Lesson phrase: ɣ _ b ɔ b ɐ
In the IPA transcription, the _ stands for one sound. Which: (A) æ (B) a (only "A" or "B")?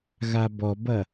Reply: B